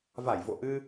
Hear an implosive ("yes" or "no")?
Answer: no